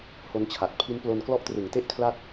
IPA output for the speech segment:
h o˦˥ n t͡ɕʰ a˨˩ t̚ pʰ i˦˥ n p l o˧ n k l ɔ˥˩ ʔ t r ɯ˨˩ ŋ t e˥˩ ʔ kʰ l a˥˩ t̚

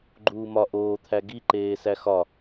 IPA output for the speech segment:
ɡ͡ǃ uː m ɒ ʔ oː t̪ʰ æ ɡ i ǃ eː s æ x ɒ

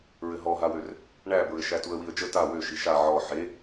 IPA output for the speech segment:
ɹ ɘ ɦ ɔ ɦ a w ø r | ɳ æ b ɹ ɘ ʃ æ t u ə̯ w i ə̯ d͡ʒ ə t a w ø ʃ i ʃ a ʕ ɔ ħ e

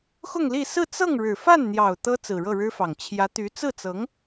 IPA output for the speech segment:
x ʊ˥˧ ŋ l i˥˧ s ɹ̩˥˧ t͡s ɤ˥˩ ŋ ɻ ɻ̩˨˩ f a˥˩ n n̪ j ɑ˨˩ ʊ̯ t̪ ɤ˥ t͡s ɹ̩˨˩ ɻ ɤ˥˩ ɻ ɻ̩˥ f ɑ˨˩ ŋ t͡ɕʰ j ä˧˥ t̪ y˧˥ t͡s ɹ̩˥˩ t͡s ɤ˧˥ ŋ

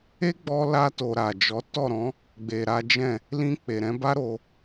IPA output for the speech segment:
e˦ ɡ͡b ɔ˧ l a˧ t o˨ ɾ a˨ d͡ʒ ɔ˨˦ t ɔ˦˨ ɾ ɔ̃˨˦ | ɡ͡b e˨ ɾ a˨˦ d͡ʒ ɛ̃˦˨ | l ĩ˧ k͡p e˨ ɾ ɛ̃˧ b a˦ ɾ o˧

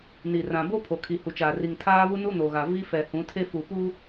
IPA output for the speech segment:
n i˨ r ã˨ b o˦ pʰ o˨ kʰ i˨ h u˨ t͡ʃ aː˨ r i˨ ŋ tʰ aː˦ β u˦ n u˦ n o˨ ɣ a˨ v i˦ f ɛ˨ h ũ˨˦ tʰ e˦ f u˨ p u˦

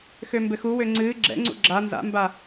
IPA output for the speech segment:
x ø m b ɘ x u w ø ŋ͡ǀ ɨ ɡ͡ǁ ɛ̰ ŋ͡ǀ ṵ ɡ͡ǁ a n z a̰ m b a

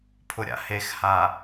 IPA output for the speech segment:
pʰ ʊ ɾʲ a̰ h e x h a

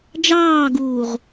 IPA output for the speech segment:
d͡ʒ ɑː ɡ uː ʁ

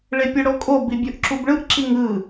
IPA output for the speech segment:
ɭ e pʲ ʌ ɽ o kʼ o b i bʲ o ʔ ǁ u b ɭ ɯ ʔ ǁ i ŋ ɯ

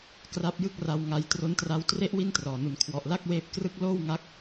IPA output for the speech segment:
k r a˦˥ p̚ j ɯ˥˩ k̚ r a˧ w ŋ a˦˥ j t r o˦˥ n t r a˦˥ w t r e˥˩ ʔ w i˥˩ n t r ɔː˨˩ n u˩˦ n kʰ w ɔ˨˩ ʔ l a˥˩ k̚ w eː˦˥ p̚ k r ɯ˥˩ k̚ l oː˥˩ w ŋ a˦˥ k̚

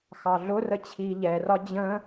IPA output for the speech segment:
x ɑ ɮ ʊ r ə t͡ɕʰ iː ʎ ɛ r ɒ d͡ʑ ə̃

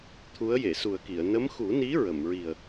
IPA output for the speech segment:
t̪ʰ u˧˥ ə̯ j e˨˩˨ s u˨˩ ə̯ k i˨˩˨ ə̯ n ə˧˥ m x u˨˩˦ n i˧˥ ɹ ə˨˩˨ m ɹ i˨˩ ə̯

